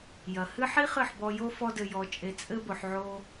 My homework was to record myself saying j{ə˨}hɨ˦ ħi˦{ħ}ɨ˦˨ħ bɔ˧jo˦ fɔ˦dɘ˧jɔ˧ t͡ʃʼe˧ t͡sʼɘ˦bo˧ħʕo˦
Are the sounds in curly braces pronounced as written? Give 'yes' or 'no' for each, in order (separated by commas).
no, no